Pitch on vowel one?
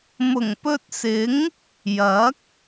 low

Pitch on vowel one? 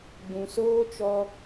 low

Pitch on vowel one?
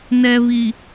low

